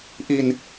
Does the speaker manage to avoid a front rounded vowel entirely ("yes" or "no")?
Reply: yes